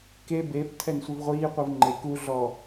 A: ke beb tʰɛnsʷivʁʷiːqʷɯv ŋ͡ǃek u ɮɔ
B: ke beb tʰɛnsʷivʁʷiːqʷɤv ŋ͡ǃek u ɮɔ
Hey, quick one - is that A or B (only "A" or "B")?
A